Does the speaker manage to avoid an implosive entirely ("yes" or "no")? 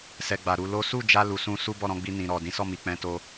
yes